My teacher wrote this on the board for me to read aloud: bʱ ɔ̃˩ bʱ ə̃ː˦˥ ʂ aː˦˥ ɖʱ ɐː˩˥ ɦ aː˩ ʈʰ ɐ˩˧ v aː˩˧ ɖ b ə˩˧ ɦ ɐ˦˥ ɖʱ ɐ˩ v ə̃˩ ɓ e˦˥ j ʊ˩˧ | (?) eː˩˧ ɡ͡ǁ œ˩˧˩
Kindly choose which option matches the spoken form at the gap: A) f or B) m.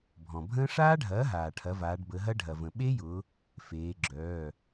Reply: A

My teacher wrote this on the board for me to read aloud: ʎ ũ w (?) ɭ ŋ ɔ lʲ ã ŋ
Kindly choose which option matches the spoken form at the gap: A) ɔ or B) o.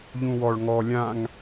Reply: A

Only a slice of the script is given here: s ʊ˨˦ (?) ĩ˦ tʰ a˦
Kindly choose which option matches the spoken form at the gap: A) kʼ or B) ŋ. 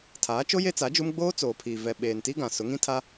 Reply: B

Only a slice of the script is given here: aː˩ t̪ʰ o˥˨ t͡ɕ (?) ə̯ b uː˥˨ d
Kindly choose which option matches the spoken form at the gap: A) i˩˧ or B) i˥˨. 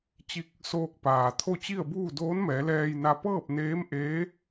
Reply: B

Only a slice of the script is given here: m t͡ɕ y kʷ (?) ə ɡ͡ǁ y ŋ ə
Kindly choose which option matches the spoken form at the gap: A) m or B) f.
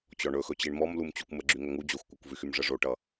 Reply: A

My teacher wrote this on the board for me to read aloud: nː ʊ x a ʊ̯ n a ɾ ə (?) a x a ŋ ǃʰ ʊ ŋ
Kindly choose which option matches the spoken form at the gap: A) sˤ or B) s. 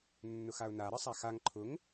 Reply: A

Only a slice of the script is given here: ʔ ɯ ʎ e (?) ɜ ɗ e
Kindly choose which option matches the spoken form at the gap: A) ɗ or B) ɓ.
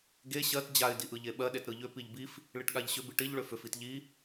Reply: B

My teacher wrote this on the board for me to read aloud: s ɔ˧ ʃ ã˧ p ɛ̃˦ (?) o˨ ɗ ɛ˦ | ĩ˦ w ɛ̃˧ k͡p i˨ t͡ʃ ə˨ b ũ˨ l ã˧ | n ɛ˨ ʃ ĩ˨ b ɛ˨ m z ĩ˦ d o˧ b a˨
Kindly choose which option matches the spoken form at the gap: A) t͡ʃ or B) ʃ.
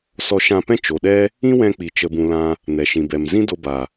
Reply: A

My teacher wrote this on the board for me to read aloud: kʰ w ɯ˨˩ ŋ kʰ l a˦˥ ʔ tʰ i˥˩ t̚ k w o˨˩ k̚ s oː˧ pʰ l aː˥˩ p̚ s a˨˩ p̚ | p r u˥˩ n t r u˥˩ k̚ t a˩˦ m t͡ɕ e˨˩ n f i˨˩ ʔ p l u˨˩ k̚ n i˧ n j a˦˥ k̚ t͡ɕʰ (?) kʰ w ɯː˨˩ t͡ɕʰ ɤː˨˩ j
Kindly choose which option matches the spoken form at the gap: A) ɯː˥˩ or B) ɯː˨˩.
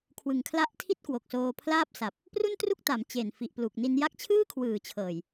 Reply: A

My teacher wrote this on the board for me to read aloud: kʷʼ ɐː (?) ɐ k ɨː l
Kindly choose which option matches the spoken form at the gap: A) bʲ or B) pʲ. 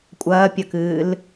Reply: B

